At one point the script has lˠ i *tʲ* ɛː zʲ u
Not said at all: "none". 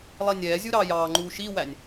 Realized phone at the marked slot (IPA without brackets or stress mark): nʲ